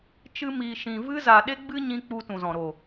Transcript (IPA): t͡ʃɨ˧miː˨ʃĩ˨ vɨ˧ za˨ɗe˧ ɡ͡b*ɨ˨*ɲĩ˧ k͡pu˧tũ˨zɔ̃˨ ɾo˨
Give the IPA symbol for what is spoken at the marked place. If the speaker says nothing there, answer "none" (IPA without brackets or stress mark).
ɨ˦